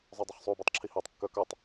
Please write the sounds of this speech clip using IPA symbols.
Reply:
zˤ œ dˤ ʏ χ sˤ u b œ tˤ ǁʰ i h əː tˤ kː œ k œ tˤ

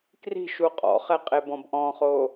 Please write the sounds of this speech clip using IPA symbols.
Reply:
k r i̤ ʃ u qʼ ɔ̰ χ ɛ qʼ e b ɔ̃ b ʔ ɔ̃ χ o

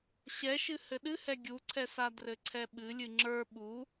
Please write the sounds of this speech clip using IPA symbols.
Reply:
ɕ ɛ ʃ ɨ h ɘ ɗ ɨ h ɛ ɡʲ u ǀʰ ɛ s a d r ɘ ǀʰ ɛ ɓ ɨ lʲ ɨ ŋ͡ǁ ə˞ ɓ u

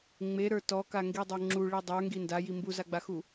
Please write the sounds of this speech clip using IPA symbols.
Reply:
ŋ͡m e ɾ ə˞ t ɔ k a ŋ ɡ i dˤ o ŋ͡ǁ u ɭ i dˤ ə˞ ŋ ɡ i n d a j i m b u z a ɡ͡b a x u

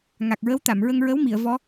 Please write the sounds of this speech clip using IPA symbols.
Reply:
ŋ a˨˩ k̚ ɹ ə˧˥ w t̪ a˨˩˨ m ɹ ə˧ ŋ ɹ ə˧˥ w m i˨˩˨ ə̯ v ɔ˧˥

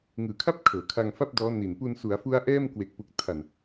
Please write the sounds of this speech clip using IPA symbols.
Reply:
ŋ ɯː˩˦ kʰ a˥˩ p̚ kʰ ɤː˩˦ kʰ a˧ ŋ f a˥˩ p̚ d ɔː˦˥ n i˨˩ n p u˧ n s u˩˦ a̯ f u˦˥ a̯ ʔ ɛː˥˩ m k w e˨˩ k̚ p u˨˩ k̚ tʰ a˨˩ n

